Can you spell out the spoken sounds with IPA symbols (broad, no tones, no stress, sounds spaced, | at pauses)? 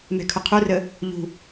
m ɛ̤ kʰ ʊ qʰ u r ə | ʎ ṳ